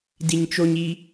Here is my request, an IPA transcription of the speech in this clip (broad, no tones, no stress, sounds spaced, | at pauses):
d i ɲ t͡ʃ o ɲ i